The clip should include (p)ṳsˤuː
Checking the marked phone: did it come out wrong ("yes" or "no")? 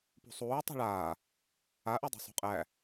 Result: no